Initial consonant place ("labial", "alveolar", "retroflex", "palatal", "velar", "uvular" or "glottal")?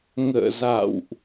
velar